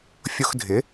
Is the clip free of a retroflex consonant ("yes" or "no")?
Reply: yes